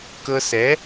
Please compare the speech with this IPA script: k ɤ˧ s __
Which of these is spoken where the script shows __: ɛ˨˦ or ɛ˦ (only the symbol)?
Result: ɛ˨˦